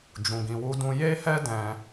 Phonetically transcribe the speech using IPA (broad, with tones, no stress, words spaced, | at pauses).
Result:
d͡ʒũ˨ɡĩ˨wu˧dũ˧ je˦hɛ˦ dɛ̃˦